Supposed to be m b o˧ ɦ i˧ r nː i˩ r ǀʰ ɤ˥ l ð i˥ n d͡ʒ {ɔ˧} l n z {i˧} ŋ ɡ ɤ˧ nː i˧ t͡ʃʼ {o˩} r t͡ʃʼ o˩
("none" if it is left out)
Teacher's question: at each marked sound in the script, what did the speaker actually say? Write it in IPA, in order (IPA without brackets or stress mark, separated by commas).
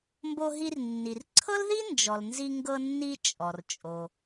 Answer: ɔ˩, i˧, ɔ˩